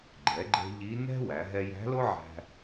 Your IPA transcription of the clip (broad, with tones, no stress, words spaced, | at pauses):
ɡ͡ǃɛ˩˧ɡ͡ǃɛ̤˧ ʎi˧˥ nɛ̤˥wæ˩˧ ɦɛ˧jæ̤˧˥lo˥ʕæ̤˧